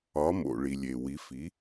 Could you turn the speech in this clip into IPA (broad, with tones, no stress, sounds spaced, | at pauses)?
ɒ˩˥ m o̰˩ ɭ i˩ lʲ e˩ w i˩˥ f i˩˥